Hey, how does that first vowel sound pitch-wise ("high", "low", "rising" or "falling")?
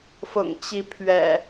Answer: low